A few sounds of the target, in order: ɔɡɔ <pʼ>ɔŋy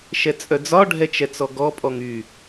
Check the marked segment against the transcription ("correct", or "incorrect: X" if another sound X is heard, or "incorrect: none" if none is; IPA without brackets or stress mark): correct